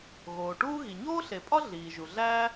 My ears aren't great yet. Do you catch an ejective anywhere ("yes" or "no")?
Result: yes